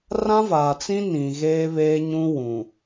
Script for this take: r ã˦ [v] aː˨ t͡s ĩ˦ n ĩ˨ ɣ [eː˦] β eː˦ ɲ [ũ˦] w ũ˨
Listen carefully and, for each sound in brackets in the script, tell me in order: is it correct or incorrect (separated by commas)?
correct, correct, correct